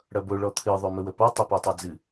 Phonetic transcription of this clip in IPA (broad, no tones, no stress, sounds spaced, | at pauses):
ɽ ʌ b o ɭ ɔ t̪ʰ ɨ ðˤ ø m ə w ə p ɔ tˤ ɐ p e tˤ ʌ d͡z ɨ